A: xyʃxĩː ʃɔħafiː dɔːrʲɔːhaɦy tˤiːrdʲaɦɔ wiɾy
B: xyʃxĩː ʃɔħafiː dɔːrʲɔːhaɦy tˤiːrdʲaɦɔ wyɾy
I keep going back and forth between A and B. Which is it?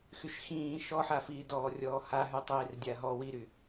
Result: A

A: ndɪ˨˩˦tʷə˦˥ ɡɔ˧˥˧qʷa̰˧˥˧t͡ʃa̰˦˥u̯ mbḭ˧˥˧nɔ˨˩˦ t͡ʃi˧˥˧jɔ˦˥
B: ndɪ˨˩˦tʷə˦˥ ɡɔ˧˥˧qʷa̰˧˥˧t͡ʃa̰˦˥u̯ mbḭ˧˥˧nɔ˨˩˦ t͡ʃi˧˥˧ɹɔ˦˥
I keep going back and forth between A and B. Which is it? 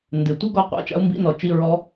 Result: B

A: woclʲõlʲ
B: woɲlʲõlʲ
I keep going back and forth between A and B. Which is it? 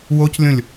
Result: A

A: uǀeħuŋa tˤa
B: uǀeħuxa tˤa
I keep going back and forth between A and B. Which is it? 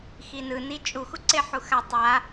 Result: B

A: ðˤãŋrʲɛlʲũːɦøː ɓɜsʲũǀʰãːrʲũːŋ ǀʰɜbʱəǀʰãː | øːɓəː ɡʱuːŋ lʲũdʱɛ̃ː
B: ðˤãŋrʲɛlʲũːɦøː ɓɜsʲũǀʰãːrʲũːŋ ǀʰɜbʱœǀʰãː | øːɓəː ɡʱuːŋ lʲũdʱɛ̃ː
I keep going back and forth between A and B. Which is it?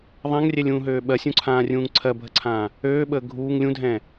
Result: A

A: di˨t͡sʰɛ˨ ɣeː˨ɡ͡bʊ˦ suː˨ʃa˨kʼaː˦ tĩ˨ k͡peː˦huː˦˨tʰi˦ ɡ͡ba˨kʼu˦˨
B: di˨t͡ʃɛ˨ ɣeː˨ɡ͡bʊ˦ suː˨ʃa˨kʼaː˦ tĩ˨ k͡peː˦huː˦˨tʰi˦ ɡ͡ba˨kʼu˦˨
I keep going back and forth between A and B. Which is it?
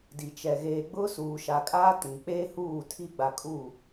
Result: B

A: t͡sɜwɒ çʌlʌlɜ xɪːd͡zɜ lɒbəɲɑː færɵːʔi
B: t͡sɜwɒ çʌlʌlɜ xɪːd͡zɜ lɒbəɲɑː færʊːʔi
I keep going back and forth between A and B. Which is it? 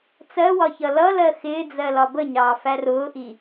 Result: B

